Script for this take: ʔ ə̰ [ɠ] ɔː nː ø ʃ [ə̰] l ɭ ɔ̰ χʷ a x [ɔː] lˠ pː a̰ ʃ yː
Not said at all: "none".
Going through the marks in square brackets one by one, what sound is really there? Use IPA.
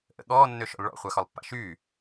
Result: ɠ, ɔ̰, ɔ

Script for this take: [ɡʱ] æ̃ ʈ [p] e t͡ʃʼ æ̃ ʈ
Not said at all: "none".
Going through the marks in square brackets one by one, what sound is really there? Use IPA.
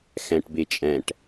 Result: x, b

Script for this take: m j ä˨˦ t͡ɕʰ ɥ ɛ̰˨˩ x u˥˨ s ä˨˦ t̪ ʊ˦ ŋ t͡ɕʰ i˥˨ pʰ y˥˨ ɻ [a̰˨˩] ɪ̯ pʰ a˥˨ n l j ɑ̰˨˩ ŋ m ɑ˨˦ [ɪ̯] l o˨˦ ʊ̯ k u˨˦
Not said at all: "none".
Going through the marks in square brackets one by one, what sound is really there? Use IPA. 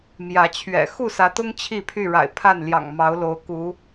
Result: a̰˨˩, ʊ̯

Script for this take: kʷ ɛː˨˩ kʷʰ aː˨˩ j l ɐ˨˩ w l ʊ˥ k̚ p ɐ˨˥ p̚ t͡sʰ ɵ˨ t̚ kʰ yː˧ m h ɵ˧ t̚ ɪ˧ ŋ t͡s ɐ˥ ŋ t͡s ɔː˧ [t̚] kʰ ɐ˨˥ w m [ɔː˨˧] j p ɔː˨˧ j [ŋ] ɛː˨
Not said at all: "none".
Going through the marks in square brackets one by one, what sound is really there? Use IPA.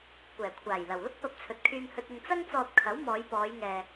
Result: t̚, ɔː˨˧, ŋ

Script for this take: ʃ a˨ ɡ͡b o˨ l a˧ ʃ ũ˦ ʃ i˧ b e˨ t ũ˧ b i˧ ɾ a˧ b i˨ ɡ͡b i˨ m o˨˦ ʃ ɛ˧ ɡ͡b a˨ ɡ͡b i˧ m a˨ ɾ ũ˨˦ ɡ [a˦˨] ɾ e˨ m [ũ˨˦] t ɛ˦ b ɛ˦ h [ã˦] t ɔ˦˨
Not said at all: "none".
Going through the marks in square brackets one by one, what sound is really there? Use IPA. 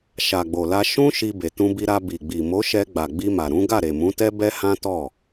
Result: a˦˨, ũ˨˦, ã˦

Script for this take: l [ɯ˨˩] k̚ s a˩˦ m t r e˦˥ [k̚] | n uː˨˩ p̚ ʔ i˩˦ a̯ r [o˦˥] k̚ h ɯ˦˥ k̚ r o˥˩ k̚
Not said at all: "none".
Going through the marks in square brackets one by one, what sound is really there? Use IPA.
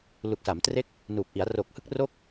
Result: u˨˩, k̚, o˨˩

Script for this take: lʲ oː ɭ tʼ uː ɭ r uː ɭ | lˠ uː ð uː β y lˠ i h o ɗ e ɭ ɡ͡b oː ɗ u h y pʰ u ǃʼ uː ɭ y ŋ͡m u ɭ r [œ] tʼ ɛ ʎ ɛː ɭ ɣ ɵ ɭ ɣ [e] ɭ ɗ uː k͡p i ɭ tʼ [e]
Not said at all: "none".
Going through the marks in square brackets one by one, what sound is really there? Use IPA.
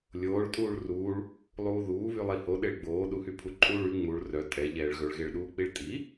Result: œ, e, i

